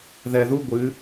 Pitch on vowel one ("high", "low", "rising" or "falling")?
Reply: low